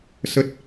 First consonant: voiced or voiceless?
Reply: voiceless